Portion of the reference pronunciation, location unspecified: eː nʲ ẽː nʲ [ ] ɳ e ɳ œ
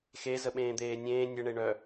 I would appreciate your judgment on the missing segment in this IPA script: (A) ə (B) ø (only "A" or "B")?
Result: A